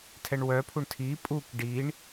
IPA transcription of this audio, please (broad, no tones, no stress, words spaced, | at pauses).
tʰɛɳwœpʰuɳ tʰi pʼuk ɖiɳ